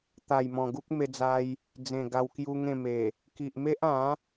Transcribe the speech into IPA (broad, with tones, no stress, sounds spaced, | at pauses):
t̪ a˨˩ j m ɔ̃˨˩ ɡ u˦ k̚ m e˧ d͡z a˧ j | d͡z ẽ˨˩ ɡ a˧ w k j u˦ ŋ ẽ˥˧ m e˨˩ | k i˨ ʔ m e˦ ʔ ã˨˦